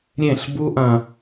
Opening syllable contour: falling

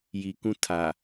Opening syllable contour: low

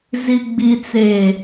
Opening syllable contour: low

